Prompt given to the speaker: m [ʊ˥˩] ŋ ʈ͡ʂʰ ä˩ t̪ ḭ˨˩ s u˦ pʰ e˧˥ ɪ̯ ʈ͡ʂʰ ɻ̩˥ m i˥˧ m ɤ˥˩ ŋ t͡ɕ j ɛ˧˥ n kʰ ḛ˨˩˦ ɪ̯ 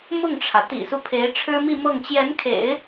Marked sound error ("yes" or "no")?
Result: no